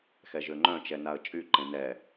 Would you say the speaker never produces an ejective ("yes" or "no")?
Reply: no